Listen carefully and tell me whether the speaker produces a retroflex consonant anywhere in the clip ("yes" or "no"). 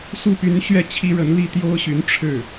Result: yes